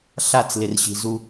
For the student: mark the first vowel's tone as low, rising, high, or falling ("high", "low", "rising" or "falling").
falling